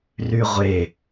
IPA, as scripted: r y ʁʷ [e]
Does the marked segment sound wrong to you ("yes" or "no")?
no